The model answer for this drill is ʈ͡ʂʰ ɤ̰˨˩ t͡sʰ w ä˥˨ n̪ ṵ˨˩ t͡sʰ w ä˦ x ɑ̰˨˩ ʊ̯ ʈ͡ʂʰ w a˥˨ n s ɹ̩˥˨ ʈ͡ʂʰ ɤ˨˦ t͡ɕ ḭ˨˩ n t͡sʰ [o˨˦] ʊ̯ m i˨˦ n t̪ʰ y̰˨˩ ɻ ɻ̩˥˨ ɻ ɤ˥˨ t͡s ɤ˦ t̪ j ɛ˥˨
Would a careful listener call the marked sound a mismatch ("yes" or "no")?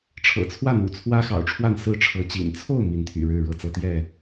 yes